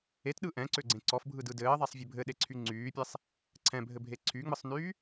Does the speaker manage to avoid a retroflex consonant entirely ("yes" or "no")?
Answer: yes